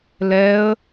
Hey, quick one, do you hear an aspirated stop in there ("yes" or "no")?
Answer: no